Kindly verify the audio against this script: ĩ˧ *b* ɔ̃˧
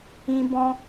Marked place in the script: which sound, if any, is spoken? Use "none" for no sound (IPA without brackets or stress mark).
b